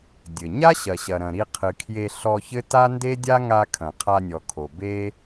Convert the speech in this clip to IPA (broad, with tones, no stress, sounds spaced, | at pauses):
dʲ ɘ˨ ɲ a˦ ɕ ɐ˨ ɕ ɐ˨ ɾ ɐ̃˨ ɾ i˧ qʰ ɨ˨ kʰ j e˧ ɬ ɔ˧ ç ɘ˦ t a˦ n d e˦ dʲ a˦ ŋ a˧ kʰ ɐ̃˨ qʰ a˧ nʲ ɔ˨ kʰ o˨ b e˦